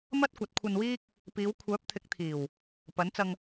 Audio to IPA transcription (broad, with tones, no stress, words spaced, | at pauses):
mɐ˥t̚kʷɐ˨˥t̚kʷʰɐ˧nwiː˥k̚ | piː˨˧wkʷʰœː˨˥p̚ t̪ʰɪ˨˥k̚t̪ʰiː˨˩w | pɐ˨˥nt͡sɐ˧ŋ